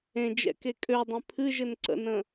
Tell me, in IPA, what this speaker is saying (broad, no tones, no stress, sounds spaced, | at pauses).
ẽ d͡ʒ ɛ̰ k e kʼ ø dˤ ẽ pʰ ɨ ʒ ɘ n ǀ ə̰ n ə̃